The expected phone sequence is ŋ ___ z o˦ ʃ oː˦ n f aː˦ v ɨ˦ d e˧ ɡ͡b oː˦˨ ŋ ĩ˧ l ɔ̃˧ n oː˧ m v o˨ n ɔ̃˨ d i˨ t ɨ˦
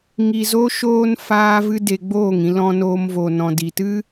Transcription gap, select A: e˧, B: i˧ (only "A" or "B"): B